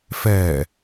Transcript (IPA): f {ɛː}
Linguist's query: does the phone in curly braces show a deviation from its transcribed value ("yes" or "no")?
no